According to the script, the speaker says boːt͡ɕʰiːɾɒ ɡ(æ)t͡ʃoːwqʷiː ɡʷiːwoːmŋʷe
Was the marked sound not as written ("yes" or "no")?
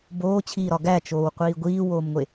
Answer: no